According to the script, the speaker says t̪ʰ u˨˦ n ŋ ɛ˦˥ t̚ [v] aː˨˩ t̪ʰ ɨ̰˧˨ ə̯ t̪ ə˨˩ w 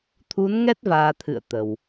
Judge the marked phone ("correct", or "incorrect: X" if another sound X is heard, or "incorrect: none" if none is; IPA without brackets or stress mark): correct